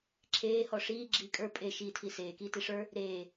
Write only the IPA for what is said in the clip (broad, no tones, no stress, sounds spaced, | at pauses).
ǁʰ eː h ɔ ʂ iː ɡ͡ǁ iː kʼ ə˞ pʼ e ʃ iː tʰ i s eː k iː t i ʂ ə˞ | ɾ eː